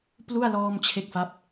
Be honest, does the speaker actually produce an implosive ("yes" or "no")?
no